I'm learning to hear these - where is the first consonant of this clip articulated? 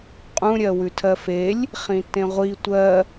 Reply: uvula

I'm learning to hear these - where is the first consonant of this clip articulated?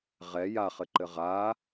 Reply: uvula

